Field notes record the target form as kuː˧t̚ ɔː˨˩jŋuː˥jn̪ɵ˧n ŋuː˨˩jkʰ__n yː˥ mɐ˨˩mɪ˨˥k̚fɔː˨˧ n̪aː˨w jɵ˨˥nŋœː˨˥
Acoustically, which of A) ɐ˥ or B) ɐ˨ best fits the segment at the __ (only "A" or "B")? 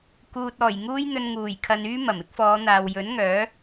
B